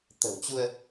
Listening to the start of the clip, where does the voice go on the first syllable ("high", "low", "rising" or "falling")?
low